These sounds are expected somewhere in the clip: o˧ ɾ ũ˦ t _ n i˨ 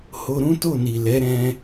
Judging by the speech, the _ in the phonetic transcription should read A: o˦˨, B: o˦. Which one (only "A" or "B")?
A